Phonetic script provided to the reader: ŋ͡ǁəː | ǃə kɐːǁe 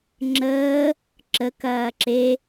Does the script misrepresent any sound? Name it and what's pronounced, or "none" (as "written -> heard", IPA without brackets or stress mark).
ǃ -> ǁ